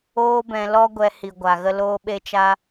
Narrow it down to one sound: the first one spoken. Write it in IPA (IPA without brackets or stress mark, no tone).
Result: oː